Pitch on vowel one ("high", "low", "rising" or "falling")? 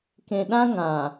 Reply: low